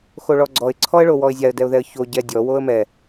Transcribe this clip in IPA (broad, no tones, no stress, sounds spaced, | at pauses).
x o ɭ ɔ ɡ͡ǀ ɔ ɪ̯ ǀʰ ɔ ə̯ ɭ o w ɔ ɪ̯ zʲ a ə̯ d ɛ ʊ̯ ð ɛ ə̯ ç o ɟ ɛ dʲ ɔ w o ə̯ m ɛ